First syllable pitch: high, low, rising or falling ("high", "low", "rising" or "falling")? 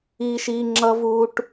high